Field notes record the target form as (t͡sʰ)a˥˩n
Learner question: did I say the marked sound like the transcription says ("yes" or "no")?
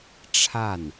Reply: no